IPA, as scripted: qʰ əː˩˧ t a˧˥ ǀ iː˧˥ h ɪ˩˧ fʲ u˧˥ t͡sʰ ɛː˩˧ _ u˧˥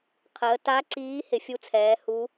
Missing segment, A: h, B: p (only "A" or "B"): A